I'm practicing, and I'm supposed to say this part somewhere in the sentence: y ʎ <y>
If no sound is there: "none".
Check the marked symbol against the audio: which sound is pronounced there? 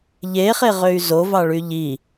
i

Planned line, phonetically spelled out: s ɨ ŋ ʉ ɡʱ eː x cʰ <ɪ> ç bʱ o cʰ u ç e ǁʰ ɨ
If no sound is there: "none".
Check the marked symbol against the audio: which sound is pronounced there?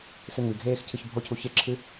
ɨ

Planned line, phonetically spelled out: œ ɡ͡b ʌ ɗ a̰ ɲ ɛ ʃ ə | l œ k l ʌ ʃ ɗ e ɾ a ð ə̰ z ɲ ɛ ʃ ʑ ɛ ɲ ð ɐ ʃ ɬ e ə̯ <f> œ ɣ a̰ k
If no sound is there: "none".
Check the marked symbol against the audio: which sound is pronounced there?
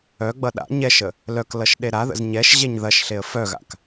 f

